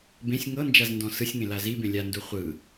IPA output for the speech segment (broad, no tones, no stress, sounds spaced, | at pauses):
b ẽ sʲ ŋ ɤ n d͡ʒ a z n d ɔ̃ s ɯ sʲ ŋ ẽ l a z i b ẽ lʲ a n d u χʷ ɯ